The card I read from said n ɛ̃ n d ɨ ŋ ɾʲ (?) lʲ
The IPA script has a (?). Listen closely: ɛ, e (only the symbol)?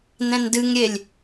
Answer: e